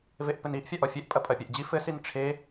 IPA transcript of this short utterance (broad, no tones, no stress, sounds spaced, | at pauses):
v e ʔ p ɘ n i ʔ fʲ a ʔ ɔ fʲ ɛ ʔ pʼ ɐ pʼ ɐ pʲ ɛ ʔ d͡ʑ i f ɘ s i n ʈ͡ʂʰ e